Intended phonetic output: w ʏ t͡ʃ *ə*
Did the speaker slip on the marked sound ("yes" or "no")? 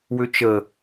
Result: no